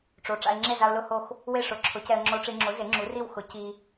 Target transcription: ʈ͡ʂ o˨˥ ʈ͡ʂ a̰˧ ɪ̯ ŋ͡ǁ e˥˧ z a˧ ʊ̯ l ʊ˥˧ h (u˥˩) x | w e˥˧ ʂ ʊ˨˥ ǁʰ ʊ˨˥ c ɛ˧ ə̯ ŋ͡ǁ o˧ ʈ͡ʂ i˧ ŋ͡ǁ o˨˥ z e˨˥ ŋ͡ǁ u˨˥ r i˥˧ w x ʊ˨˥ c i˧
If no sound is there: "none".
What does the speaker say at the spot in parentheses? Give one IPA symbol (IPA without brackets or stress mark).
o˥˩